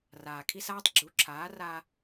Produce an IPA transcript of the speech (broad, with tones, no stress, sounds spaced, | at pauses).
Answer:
r aː˨ kʰ i˦ s aː˦ tˤ ɡ͡ǁ u˨˦ ǁʰ aː˨˦ r a˦